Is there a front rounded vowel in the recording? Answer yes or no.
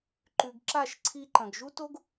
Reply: no